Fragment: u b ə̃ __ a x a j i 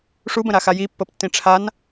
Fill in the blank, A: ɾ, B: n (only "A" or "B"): A